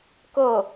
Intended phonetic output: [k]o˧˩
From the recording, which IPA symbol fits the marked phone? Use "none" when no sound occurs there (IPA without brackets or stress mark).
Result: k